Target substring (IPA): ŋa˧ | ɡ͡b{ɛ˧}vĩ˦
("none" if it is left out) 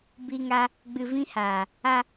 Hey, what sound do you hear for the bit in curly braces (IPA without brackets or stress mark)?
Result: ɨ˧